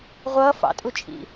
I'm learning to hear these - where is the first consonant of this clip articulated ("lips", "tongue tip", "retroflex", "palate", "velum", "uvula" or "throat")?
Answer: uvula